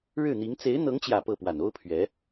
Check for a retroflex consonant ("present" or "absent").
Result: present